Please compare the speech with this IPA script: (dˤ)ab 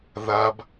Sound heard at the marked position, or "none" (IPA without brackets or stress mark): ð